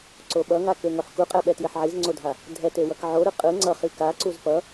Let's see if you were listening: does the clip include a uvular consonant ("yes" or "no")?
yes